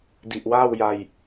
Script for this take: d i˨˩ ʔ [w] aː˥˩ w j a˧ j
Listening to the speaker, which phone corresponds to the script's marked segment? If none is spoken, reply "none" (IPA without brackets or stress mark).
w